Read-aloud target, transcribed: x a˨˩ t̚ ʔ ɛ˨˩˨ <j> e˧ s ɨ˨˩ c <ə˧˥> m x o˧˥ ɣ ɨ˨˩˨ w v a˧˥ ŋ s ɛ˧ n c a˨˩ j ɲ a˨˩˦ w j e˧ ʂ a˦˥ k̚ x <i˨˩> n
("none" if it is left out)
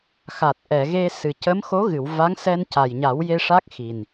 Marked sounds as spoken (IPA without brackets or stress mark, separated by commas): ɣ, ə˧˥, i˨˩